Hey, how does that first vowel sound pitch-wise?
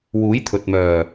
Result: rising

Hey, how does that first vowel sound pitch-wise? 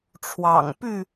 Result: low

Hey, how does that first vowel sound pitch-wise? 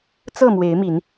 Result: falling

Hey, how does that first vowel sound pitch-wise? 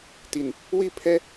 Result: low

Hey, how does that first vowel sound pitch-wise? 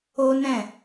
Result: high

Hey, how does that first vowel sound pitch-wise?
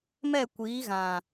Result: falling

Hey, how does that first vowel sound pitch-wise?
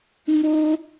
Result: high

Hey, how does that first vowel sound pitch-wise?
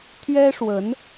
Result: high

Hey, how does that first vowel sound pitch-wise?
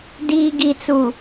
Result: low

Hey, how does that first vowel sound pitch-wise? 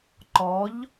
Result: rising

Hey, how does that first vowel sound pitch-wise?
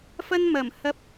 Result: high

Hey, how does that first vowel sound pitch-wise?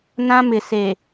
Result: high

